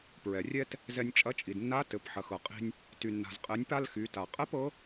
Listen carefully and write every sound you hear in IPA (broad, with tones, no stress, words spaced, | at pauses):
pɹɛ˩rʲɛ˥t | zɛ˧nʲt͡ʃʼɐ˧˥ t͡ʃʼi˩dnːa˧˥ tɘ˩˧p ħɐ˩xɤ˩qʼi̤˧nʲ | ty˩nːa̤˩zqʼɛ˩˧nʲpa˧l xy˩˧ta˩ qʼɛ˥pɤ˧˥